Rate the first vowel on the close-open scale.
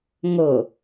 mid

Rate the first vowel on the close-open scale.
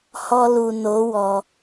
mid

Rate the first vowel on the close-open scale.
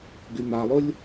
close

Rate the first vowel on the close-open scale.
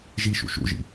close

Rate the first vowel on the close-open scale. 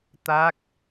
open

